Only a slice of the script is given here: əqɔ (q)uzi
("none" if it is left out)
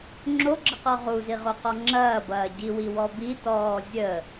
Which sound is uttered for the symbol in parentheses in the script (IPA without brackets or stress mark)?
ʁ